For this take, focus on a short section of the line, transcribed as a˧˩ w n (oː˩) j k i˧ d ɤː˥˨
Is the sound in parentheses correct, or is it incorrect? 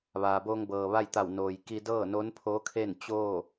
correct